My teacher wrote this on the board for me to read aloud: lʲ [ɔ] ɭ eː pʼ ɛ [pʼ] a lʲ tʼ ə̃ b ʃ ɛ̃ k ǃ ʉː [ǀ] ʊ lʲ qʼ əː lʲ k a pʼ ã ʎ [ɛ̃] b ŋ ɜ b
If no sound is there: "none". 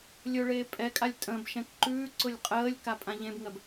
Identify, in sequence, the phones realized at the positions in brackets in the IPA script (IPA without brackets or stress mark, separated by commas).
ɵ, kʼ, ǀ, ẽ